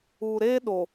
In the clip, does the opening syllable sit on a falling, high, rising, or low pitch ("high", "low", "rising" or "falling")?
low